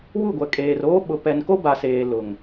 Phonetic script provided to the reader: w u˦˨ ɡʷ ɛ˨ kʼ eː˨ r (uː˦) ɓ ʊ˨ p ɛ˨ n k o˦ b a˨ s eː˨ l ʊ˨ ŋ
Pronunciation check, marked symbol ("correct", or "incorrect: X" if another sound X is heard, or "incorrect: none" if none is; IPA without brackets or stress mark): incorrect: oː˦